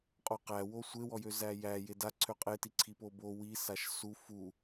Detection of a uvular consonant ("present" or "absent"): present